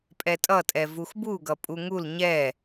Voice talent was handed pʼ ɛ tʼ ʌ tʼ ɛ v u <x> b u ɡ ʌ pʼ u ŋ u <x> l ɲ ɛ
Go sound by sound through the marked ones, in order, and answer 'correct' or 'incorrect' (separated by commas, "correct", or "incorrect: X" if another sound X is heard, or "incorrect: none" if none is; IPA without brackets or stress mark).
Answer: correct, incorrect: none